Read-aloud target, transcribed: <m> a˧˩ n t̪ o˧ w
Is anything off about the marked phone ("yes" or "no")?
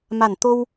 no